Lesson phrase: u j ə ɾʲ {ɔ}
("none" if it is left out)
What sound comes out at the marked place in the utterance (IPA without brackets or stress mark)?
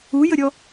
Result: ɔ